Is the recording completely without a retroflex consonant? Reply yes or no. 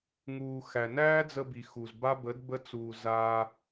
yes